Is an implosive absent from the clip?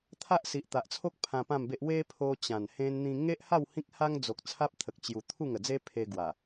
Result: yes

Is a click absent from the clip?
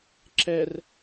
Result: no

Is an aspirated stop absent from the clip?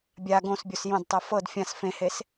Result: yes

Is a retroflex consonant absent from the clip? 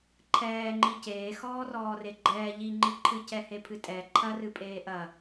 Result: yes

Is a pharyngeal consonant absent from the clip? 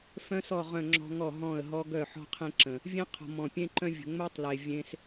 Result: no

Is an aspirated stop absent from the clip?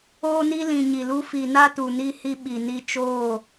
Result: yes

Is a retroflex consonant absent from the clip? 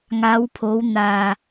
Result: yes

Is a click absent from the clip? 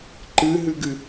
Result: no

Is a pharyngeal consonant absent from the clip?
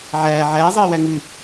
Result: no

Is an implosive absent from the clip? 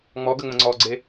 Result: yes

